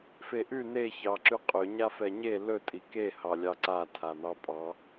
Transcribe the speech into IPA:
feʔʉ ne çɑǁʉqʼɵ ɲafɛɲe lɵ tʼike hɑlʲɑǀa tʰan̪ɑpʼɑ

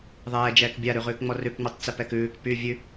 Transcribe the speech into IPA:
ðˤɛːd͡ʒɛːk bʲaɾʉʁʉːkŋ͡mɔ rʉkŋ͡mɛtˤ t͡sɛpɛkʉːk py vʲʉ

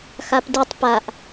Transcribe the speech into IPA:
xapditˤ paʔ

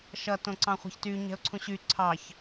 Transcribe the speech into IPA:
ʃʌtõ ǀɑ̃χʷɛ̤çty ɲɛ̤ʊ̯ǀʰũɕy ǀʰɑç

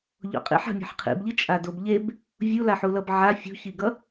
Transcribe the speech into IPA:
ʎo̰qʼḭħ a̤mʲɛ̤ħqʰḭbʎi t͡ʃʼadobʎeb | vʲulaħulʌb ʕa fʲṳçiɡʌ

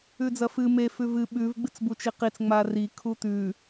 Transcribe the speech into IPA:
ʉd͡zɐfɨ me fʉvɨ ɓʉv ɡ͡bɨt͡sbut͡ʃiqit͡s ŋ͡mari kʰut̪ʉ

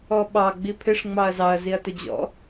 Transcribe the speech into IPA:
ɔɓɑ ɡ͡bipʰɪʂ ŋ͡mɑɐ̯zɑɐ̯ ziɐ̯tʊd͡ʑɔ̰

